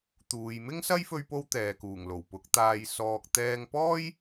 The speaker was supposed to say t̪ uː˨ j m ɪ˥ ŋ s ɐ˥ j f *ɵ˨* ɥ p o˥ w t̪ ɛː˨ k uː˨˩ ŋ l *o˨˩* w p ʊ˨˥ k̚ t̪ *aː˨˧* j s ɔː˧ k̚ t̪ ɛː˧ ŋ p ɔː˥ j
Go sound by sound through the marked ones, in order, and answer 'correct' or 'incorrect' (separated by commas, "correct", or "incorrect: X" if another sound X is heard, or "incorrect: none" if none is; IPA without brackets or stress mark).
incorrect: ɵ˥, correct, incorrect: aː˧